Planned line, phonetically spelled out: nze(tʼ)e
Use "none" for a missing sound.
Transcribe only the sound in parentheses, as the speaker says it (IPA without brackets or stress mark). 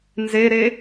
ɾ